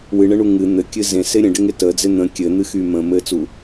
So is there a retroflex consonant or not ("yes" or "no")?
yes